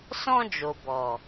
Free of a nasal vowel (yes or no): no